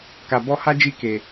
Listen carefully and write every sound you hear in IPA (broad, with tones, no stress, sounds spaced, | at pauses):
k a˨ b ɔ˧ h a˦ d͡ʒ i˧ k e˨